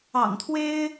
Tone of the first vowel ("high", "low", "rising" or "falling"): low